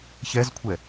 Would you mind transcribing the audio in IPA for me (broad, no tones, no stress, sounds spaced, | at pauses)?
ç ɛ z kʷʰ ɛ